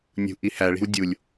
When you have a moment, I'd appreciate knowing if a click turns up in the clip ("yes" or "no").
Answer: no